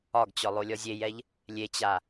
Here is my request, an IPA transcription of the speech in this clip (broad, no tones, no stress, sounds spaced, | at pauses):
ɒ ɡ t͡ɕ ɔ lˠ o lʲ ɔ zʲ e j ɛ ʎ | lʲ e t͡ɕ a